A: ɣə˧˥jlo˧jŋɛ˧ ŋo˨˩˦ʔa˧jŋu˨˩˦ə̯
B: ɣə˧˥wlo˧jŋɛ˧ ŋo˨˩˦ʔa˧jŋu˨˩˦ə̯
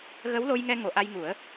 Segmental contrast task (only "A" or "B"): B